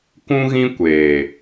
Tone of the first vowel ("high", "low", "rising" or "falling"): high